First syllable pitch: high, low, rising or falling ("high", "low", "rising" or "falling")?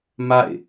falling